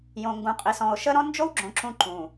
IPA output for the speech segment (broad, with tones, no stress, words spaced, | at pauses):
jõ˨ŋɡũ˨qʼi˨sɔ̃˨o̯ ʃə˦ɾɔ̃˦ nd͡ʒo˦wɡ͡ǁõ˨ ǁũ˦ ǃũ˨